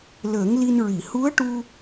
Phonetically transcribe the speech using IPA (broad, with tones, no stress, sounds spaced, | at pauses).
l əː˨˩˦ ŋ l i˧ n ɹ i˨˩˨ h u˧˥ ə̯ ʈ u˧